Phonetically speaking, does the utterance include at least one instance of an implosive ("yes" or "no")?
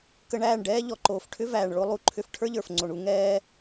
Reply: no